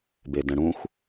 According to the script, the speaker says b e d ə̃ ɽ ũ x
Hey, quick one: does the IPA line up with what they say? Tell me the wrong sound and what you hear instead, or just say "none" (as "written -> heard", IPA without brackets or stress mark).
none